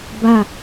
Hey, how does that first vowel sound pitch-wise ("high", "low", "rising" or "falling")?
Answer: falling